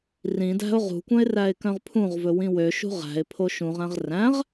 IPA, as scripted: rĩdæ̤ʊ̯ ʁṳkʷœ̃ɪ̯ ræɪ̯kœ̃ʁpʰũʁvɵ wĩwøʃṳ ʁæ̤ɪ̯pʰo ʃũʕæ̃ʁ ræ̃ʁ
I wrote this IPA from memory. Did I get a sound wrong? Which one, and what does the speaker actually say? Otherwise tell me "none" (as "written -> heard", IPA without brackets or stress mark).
ʕ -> ʁ